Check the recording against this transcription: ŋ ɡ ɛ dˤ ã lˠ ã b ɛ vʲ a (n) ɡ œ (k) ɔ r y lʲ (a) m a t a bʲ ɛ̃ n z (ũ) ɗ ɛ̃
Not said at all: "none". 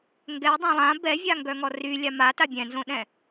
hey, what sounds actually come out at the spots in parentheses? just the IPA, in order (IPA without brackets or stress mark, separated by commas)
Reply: ŋ, ŋ, a, õ